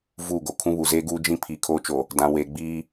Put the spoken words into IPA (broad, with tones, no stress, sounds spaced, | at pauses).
v uː˦˨ ɡ o˨ kʰ ũ˦ β u˨ z eː˦ ɡ uː˦ d͡ʒ ĩ˦ pʰ iː˨ kʰ oː˦ t͡ʃ o˨ | d ã˨ w eː˨ ɡ͡b iː˦